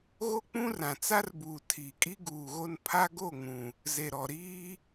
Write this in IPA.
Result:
ɣ o˦ k͡p ũ˦ r ã˨ t͡s a˦ r b uː˨ tʰ iː˨ kʼ i˦ ɡ uː˨ ɣ o˦ n pʰ a˦ ɡ o˦˨ ŋ ũ˨ | z e˨ ɾ ɔ˨ ɾ iː˦

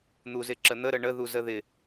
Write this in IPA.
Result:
n̪ u z ɪ ǁ ə n̪ ə ɾ ə ɳ ə ð u z ə ð ɪ

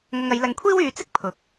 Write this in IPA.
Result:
ŋ ɐ˧ ŋ ɐ˨˧ j l ɐ˧ ŋ kʷʰ iː˥ w yː˨˧ t͡s ɪ˥ k̚ pʰ ʊ˨˥ k̚

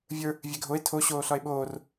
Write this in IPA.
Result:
vʲ ə˞ | vʲ e ɡʱ o e̯ tʰ o ɕ oː ɬ ɒ e̯ ɓ oː r

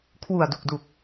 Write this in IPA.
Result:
kʰ w u˨˩ a̯ d u˨˩ k̚ d u˨˩ k̚

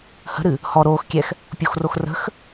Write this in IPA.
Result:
h ə̤ ɾ ɨ | h ɔ ɾ oː x kʲ ɛ x | pʲ o x r o x r ə̤ x

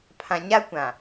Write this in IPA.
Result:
pʰ ã˨ ɲ a˦ kʷ ã˨

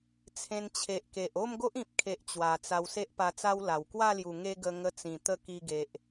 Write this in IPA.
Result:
t͡sʰ ẽ˧ n t͡ɕʰ e˨ ʔ k e˨ ʔ o˥˧ m ɡ o˦ ʔ ĩ˨ p̚ kʰ e˨ ʔ t͡ɕ w a˨˩ t͡s a˧ w s e˦ ʔ p a˧ t͡s a˦ w l a˨˩ w k w a˥˧ l j u˨˩ ŋ e˧ ɡ ə˧ ŋ ə˧ t͡s ĩ˨˩ t̪ ə˥˧ k i˧ ɡ e˨ ʔ

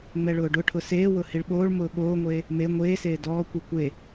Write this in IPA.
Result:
ŋ͡m ɛ ɭ ʊː ɖ ʊ ʈʰ ʊ s eː w ʊ h i ɭ ɓ oː ɭ m ʊː ɠ oː ŋʷ eː | m e ŋʷ eː s eː d ɔː kʷ i kʷ e

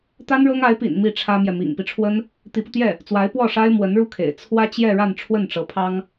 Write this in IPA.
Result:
t̪ a˥ n ɻ ɤ˥ ŋ a˧˥ ɪ̯ p ḭ˨˩ n m i˥˩ ʈ͡ʂʰ ä˥ m j ɛ˨ m ḭ˨˩ ŋ p i˦ ʈ͡ʂʰ w ə˥ n | t̪ i˧˥ p u˧ t̪ j ɛ˥˩ | t͡s w a˧˥ ɪ̯ p w ɔ˥˩ ʂ a˥ ɪ̯ m w ə˧˥ n ɻ u˥˩ kʰ ḛ˨˩ ɪ̯ t͡sʰ w ä˥ t͡ɕ j ɛ˥˧ ɻ a˥˧ n ʈ͡ʂʰ w ə˥˩ n ʈ͡ʂ ɤ˧˥ pʰ ɑ˥ ŋ

